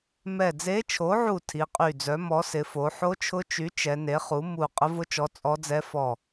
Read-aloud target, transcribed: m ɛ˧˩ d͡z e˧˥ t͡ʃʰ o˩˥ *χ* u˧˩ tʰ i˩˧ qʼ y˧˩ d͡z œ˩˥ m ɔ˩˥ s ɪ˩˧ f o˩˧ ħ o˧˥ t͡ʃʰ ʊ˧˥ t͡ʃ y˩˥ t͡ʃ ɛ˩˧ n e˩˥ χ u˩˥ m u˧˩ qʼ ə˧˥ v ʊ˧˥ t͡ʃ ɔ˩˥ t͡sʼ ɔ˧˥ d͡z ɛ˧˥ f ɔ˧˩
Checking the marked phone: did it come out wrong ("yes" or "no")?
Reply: yes